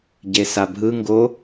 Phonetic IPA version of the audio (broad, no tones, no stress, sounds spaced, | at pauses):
ɟ e s a bʱ ɯ ŋ ɡ o